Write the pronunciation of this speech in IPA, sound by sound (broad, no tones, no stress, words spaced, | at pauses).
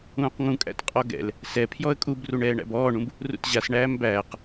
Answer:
ũːqŋũkʼæ̰t qʼɔɡɛ̰l | sɛ pʰjɔə̯kʼubruɳ ɛːɳæ̰bɔːɳũb | rṵtʑas ɳæːmbæːq